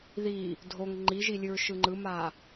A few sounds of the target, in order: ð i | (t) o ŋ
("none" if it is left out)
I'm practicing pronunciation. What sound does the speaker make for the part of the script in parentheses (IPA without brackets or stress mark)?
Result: dʱ